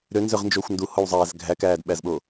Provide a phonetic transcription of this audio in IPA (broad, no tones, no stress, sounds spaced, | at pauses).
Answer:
ɾ ø n z ø ʁ n d͡ʒ oː xʷ n d u h o w zˤ æː z ɡʱ æ k æː d ɓ æ z ɓ o